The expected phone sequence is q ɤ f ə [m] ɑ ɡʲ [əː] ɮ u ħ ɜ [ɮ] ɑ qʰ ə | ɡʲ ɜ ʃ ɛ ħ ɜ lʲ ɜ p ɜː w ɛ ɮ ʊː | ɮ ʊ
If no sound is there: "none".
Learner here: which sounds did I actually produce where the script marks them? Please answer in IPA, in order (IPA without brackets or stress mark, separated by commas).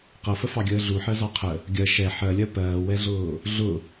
f, əː, z